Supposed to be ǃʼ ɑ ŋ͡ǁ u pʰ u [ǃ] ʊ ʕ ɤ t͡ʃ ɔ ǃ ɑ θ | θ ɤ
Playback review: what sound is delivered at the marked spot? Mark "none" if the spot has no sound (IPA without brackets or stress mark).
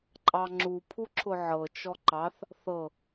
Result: ǁ